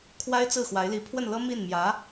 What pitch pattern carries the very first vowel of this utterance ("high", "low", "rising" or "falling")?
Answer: high